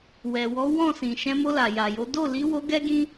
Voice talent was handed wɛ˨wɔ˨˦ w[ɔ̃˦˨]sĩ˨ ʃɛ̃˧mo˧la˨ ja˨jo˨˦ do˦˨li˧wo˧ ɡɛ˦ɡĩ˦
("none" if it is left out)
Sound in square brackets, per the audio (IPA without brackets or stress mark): ɔ̃˦˨